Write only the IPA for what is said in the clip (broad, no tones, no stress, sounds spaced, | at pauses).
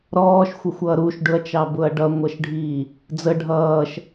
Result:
ɾ ɔː ʃ xʷ ə xʷ ʌː ɾ u ʃ ɖ ʊ ɐ̯ t͡ʃ ɑ b ʊ ɐ̯ ɖ ʌ ŋʷ ʌ ʃ ɖʱ iː | d͡z ə ɖʱ ʌː ʃ